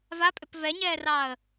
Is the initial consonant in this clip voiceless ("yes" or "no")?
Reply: no